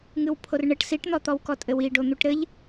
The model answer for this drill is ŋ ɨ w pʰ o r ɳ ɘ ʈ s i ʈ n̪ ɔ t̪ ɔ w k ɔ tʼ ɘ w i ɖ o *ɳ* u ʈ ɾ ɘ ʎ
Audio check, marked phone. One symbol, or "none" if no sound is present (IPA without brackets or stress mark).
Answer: n̪